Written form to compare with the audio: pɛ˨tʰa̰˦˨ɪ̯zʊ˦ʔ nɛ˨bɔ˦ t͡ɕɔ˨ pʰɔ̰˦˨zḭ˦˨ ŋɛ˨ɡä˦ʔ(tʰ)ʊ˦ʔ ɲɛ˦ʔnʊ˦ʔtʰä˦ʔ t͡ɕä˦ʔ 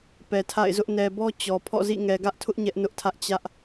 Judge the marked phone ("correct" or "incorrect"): correct